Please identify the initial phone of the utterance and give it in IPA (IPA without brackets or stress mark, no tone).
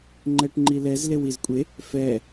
ŋ͡ǃ